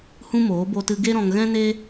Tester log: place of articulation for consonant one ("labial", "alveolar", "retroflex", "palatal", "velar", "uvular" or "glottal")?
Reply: glottal